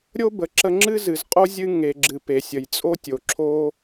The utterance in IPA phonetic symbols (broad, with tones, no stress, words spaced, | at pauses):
ɾʲo˥bə˩ ǁə˧ŋ͡ǁɨ˥zɨ˩zqʼo˥ zʲɨ˧ ŋe˩ɡ͡ǁɨ˩p e˩sʲə˩jt͡sʼo˥tʲo˩ ǁʰo˥